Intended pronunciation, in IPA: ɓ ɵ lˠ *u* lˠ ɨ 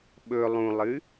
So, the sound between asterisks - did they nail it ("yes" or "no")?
no